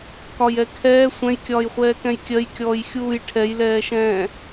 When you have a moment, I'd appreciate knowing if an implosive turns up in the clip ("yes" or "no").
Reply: no